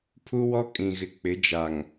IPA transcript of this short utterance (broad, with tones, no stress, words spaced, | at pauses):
pʰu˦wɔ˦ kʼĩ˨ɣɪ˨ k͡pɪ˨˦d͡ʒa˨ŋ